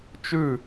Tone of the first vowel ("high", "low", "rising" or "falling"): falling